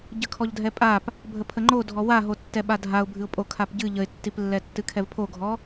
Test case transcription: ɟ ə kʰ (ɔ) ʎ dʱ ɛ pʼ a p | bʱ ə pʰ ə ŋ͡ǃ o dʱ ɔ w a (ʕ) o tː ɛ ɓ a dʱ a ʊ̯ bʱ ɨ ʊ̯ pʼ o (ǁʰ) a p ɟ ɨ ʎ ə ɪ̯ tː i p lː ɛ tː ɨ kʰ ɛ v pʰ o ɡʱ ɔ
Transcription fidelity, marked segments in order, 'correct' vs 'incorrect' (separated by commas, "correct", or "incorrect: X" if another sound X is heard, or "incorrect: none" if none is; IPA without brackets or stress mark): correct, incorrect: ɦ, incorrect: kʰ